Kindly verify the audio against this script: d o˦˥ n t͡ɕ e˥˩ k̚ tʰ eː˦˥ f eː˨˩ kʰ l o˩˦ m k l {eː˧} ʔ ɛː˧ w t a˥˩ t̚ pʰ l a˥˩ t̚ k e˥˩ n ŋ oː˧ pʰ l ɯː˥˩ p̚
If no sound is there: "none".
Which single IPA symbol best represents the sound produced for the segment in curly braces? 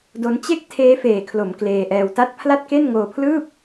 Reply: eː˧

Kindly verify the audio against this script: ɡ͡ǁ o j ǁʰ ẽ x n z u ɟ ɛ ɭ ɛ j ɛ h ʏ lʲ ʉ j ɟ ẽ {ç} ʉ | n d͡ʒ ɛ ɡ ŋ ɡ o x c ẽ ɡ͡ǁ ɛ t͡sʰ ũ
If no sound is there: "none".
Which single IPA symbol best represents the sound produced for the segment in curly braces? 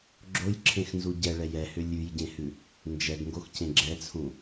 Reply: h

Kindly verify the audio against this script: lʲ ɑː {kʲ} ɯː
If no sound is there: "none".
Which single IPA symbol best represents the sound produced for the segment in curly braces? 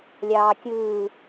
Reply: kʲ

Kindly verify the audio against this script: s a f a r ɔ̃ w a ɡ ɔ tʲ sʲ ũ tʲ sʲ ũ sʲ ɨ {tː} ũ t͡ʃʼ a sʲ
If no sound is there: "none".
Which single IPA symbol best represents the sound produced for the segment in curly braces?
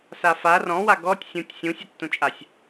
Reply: tː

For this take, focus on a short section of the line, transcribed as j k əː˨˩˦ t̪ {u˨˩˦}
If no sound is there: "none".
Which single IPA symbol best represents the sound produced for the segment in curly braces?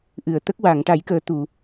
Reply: u˨˩˨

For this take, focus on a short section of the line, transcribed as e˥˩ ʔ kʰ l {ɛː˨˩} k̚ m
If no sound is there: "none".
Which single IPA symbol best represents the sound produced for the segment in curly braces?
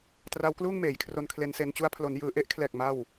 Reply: ɛː˨˩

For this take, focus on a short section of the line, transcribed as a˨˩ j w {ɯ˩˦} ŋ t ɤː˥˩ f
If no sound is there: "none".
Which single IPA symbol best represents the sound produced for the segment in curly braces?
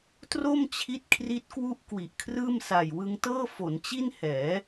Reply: ɯ˧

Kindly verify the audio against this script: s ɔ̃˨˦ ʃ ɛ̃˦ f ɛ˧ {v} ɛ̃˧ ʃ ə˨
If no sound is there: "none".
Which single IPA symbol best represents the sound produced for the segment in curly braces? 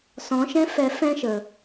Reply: f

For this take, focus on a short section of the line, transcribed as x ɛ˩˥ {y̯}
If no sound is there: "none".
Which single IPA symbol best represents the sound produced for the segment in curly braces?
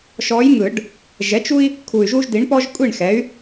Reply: y̯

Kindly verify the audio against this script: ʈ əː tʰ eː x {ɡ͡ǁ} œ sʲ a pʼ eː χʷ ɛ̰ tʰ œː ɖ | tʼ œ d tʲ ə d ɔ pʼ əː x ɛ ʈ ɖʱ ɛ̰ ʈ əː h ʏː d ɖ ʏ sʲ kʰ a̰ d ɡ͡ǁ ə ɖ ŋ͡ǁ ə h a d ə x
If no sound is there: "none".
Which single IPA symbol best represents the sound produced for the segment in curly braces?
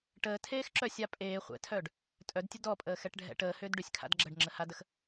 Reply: ǁ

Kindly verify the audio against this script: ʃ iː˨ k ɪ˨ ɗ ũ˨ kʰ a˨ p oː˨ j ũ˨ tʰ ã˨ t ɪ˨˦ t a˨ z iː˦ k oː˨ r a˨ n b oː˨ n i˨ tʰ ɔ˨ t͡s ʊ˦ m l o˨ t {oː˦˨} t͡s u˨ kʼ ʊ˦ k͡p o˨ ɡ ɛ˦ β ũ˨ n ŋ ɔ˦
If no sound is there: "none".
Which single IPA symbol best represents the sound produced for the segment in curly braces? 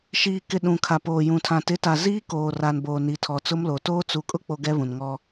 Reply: oː˦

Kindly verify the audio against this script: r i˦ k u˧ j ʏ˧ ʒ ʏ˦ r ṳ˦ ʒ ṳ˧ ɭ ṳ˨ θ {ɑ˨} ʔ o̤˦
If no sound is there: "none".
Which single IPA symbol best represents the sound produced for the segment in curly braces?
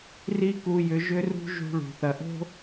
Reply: ɐ˨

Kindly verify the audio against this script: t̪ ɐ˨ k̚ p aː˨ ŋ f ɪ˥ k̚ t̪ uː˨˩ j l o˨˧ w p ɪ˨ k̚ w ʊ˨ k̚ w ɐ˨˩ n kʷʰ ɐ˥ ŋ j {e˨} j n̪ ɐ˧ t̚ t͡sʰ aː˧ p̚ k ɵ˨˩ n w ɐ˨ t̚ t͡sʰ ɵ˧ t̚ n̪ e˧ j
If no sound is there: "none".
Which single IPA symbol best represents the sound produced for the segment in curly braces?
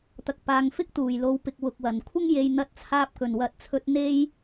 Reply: e˨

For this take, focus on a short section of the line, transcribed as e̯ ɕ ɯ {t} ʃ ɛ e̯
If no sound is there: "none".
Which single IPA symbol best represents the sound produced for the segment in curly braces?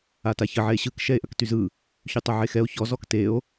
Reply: k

